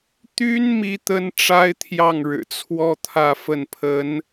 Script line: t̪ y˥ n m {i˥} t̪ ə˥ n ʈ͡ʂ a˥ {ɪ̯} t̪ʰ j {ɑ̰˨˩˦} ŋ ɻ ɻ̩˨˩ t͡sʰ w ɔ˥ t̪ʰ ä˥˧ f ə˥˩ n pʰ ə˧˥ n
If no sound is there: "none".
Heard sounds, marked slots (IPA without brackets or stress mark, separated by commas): i˥, ɪ̯, ɑ˥˩